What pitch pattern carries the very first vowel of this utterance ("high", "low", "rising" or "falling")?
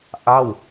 falling